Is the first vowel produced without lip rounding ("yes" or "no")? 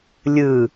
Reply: yes